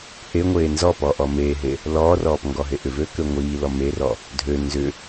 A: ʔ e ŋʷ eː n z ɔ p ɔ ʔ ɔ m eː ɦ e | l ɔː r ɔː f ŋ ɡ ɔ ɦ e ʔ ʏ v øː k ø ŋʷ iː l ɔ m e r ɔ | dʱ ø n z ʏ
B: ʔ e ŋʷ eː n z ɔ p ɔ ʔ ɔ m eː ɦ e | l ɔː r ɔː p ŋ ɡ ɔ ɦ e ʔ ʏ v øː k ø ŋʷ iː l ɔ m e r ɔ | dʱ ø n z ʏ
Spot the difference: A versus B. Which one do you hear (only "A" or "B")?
B